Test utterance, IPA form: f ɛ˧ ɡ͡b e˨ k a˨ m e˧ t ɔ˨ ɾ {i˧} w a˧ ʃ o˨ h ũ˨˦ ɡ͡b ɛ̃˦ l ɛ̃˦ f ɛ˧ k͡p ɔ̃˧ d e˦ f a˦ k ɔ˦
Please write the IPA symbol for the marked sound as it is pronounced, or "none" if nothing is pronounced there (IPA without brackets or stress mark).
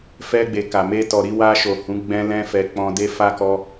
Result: i˧